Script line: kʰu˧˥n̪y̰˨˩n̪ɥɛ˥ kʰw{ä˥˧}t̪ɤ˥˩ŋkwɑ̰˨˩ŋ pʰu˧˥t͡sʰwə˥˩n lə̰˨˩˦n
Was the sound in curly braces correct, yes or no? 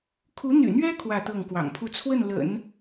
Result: yes